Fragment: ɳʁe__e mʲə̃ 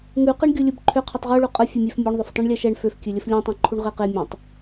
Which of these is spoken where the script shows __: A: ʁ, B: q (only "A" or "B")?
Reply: B